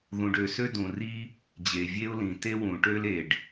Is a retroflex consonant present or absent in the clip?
present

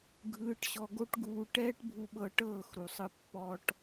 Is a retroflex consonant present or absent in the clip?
present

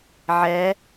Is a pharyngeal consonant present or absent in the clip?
present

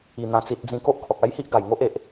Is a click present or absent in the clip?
absent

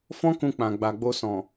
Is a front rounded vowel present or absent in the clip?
absent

